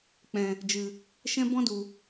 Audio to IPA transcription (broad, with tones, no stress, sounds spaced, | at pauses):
k͡p ɛ̃˨ | d͡ʒ ɨ˨ | ʃ ɛ̃˦ b ɔ̃˦ d u˨